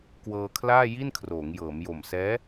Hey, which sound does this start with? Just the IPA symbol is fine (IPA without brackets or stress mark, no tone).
k